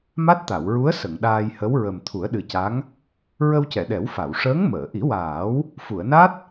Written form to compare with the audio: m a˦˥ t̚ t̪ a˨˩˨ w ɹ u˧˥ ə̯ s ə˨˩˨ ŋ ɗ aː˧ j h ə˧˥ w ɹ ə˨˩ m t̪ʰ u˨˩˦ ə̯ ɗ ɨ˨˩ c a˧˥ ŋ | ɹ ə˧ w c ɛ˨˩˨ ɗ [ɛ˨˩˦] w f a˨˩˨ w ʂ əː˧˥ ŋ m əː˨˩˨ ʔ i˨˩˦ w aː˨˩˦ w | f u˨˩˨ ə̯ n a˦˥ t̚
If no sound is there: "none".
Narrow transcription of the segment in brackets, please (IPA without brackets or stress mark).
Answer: ɛ˨˩˦